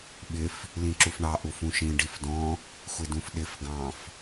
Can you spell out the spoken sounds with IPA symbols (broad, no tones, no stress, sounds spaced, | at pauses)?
ɓ ɪ f | l ĩ ǁ u f ɳ ɑ ʔ u f ũ ʃ ĩ ɖ i f d ɔ̃ | xʷ ɪ d ũ f ɗ ɪ f ɡ ɑ̃ f